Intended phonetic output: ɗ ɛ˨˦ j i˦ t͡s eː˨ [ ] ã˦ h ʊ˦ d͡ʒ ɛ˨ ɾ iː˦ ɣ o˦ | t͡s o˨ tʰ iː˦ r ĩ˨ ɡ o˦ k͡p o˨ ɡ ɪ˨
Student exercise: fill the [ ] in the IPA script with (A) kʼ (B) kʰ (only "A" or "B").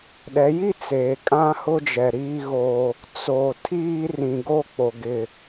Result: A